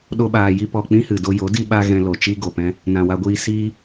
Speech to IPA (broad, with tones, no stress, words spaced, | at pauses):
ɗo˧ɓaː˨ ji˧pɔ˨ k͡pĩ˦hɨ˨ do˧jo˨˦ di˧ɓa˧ ɣɛ̃˧ lo˨t͡ʃi˦ ɡo˨pɛ̃˦ | nã˨wa˧ɡʷiː˧siː˦